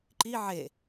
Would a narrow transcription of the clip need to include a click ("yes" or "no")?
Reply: yes